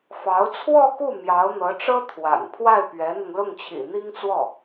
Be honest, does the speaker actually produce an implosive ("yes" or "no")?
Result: no